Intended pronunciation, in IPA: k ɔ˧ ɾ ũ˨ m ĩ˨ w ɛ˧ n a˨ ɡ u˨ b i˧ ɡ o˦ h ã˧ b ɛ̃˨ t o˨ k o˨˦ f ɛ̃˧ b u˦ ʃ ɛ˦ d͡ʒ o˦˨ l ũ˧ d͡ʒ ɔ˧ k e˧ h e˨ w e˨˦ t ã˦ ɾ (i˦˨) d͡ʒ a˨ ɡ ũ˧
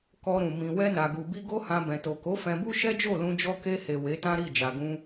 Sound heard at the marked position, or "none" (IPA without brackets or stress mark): i˦˨